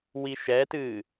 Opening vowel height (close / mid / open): close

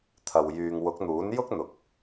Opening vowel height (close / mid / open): open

